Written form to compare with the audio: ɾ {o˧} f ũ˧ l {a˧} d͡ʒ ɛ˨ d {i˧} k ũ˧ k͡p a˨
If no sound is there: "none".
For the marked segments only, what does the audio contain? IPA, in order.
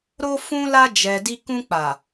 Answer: o˧, a˧, i˧

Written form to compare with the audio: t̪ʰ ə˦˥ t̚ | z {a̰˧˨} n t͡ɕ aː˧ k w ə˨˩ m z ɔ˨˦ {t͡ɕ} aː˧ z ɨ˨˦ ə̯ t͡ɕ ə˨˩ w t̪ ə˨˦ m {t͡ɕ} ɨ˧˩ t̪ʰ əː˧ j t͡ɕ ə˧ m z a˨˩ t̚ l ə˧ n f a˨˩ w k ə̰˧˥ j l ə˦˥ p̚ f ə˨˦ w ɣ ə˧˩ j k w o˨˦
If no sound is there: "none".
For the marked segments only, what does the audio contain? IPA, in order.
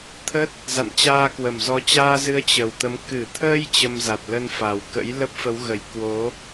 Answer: a̰˧˨, t͡ɕ, k

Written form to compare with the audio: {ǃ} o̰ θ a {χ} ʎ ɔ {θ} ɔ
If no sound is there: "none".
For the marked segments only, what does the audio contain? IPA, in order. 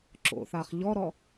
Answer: ǁ, χ, ɾ

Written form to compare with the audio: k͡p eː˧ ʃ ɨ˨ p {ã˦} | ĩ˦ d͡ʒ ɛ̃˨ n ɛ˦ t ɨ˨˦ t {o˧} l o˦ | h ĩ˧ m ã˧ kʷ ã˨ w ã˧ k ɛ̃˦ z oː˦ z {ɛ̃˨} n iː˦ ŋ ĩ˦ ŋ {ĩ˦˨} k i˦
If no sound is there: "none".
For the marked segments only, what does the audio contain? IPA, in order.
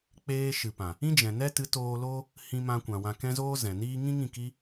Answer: ã˨, oː˧, ɛ̃˨, ĩ˦˨

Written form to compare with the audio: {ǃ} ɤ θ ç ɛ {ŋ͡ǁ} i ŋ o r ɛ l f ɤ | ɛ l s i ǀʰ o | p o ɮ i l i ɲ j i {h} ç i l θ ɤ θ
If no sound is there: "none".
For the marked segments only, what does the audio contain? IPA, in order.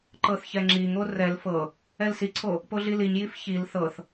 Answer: ǃ, ŋ͡ǁ, f

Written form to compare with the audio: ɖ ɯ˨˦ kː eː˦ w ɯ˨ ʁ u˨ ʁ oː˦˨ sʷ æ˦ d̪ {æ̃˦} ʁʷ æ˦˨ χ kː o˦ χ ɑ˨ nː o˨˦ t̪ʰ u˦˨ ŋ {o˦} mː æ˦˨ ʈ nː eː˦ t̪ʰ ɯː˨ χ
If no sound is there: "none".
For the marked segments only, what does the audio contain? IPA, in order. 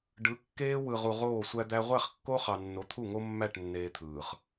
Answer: æ˦, o˦

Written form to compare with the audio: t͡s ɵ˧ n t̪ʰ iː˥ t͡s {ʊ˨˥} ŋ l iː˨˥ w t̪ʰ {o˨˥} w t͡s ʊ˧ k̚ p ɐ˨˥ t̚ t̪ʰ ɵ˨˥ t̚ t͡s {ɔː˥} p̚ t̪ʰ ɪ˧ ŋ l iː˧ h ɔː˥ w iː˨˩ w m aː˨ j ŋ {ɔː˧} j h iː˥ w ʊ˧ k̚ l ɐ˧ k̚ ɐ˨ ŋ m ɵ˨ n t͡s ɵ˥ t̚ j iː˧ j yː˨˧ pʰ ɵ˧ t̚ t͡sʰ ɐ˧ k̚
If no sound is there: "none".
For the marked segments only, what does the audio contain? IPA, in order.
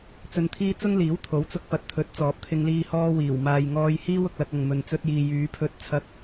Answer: ʊ˥, o˨˥, ɔː˨˥, ɔː˧

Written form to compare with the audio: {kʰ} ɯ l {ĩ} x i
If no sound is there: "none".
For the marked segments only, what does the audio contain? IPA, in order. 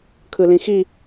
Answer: kʰ, ĩ

